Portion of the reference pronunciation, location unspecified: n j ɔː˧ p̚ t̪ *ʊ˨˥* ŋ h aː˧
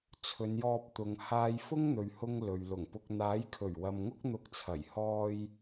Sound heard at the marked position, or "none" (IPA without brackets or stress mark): ʊ˨˧